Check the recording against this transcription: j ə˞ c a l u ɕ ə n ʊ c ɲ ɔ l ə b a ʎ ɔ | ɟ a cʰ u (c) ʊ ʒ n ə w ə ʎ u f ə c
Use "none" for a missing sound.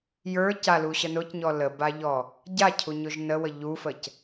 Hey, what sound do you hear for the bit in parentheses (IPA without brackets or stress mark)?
ɲ